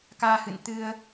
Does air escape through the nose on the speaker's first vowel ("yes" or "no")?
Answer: no